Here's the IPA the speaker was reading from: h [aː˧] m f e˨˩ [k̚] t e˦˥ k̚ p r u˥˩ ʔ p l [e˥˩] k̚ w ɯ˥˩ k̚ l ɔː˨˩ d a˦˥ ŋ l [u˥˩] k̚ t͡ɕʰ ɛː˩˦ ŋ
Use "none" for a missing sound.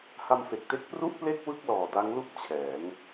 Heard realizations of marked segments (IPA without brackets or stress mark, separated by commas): a˧, k̚, e˥˩, u˥˩